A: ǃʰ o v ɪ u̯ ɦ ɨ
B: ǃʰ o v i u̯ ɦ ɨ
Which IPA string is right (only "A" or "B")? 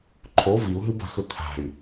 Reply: B